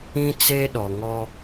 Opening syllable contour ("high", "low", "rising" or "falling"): high